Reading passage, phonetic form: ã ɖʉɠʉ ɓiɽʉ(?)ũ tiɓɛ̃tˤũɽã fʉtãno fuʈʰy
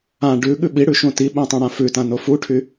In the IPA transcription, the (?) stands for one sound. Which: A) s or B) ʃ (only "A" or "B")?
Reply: B